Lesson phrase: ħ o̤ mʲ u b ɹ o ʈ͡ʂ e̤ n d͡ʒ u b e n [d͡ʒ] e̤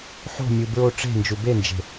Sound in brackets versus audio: correct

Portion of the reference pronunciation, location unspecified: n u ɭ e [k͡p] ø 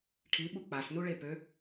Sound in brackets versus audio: incorrect: p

